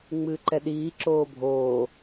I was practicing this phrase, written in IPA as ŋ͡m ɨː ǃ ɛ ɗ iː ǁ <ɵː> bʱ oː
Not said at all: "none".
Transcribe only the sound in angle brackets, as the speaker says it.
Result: oː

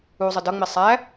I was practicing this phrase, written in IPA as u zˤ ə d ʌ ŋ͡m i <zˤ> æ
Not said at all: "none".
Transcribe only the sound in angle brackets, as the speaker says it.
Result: sˤ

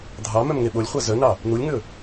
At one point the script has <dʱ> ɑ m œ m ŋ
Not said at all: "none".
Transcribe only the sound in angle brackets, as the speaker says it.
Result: dʱ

